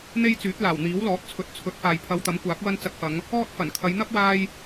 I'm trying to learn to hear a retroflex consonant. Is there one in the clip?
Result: no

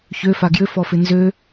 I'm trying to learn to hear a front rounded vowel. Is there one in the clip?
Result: yes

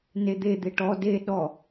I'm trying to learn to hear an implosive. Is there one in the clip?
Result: yes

